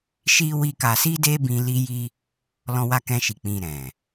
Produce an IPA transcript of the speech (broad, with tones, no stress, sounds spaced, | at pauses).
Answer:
ʃ i˦ w i˦ k a˧ s i˦ d e˦ b ĩ˧ l i˦ j i˦ | l ɔ̃˦ w a˦ k ɛ̃˦ ʃ i˧ k͡p ĩ˧ ɾ ɛ̃˨